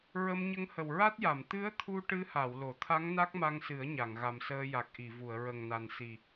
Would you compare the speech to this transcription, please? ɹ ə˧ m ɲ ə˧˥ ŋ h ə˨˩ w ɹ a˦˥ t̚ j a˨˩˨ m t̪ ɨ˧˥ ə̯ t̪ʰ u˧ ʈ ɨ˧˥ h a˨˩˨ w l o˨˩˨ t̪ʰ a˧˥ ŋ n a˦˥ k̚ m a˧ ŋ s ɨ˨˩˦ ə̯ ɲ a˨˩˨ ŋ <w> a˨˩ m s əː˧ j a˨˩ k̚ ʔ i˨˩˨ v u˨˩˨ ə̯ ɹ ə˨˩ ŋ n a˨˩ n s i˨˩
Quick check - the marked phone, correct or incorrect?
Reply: incorrect